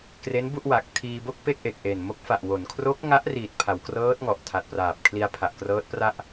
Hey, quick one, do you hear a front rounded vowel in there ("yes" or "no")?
no